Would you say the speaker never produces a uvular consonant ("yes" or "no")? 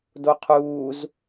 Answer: no